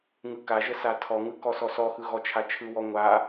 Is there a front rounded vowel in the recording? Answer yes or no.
no